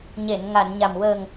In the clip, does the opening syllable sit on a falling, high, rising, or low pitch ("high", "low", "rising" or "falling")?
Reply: low